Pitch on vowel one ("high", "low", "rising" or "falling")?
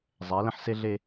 rising